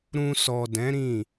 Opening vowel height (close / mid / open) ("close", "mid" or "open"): close